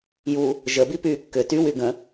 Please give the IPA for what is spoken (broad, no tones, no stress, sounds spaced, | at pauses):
j u | ʒ ə b i p yː kː ʏ t y w y ɡ ə̃